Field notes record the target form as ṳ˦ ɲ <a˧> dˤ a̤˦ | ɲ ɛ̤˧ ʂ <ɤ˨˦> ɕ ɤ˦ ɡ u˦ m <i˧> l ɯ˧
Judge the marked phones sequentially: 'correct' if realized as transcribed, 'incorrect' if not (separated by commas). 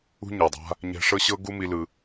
incorrect, incorrect, correct